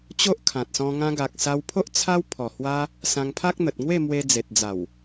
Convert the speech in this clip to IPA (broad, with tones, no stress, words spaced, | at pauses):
t͡ɕo˦ʔkʰã˨t̚sɔ̃˧ ŋã˧ɡa˨k̚ sa˧wpʰo˦ʔ t͡sʰa˦wpʰɔ˨˩ hwa˦ | sã˧ŋpʰa˦k̚n̪ə˨t̚ ŋwe˥˧ mwe˧d͡ze˨t̚d͡za˨˩w